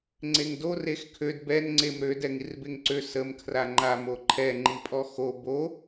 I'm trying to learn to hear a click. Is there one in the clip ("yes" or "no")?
yes